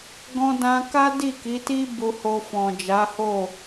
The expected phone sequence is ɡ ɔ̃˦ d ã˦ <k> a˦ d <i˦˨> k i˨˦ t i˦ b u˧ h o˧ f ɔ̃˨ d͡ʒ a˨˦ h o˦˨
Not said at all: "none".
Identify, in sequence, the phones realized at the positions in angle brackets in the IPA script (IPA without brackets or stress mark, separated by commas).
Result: k, i˦˨